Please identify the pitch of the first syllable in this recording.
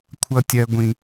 high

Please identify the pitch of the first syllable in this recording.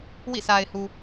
falling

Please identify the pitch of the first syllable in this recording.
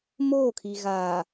falling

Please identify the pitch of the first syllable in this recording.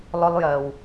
high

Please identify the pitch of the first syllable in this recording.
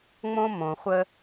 high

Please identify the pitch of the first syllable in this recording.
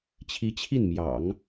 rising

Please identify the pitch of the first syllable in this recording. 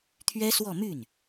high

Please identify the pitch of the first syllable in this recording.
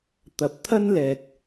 low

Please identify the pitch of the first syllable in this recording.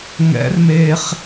rising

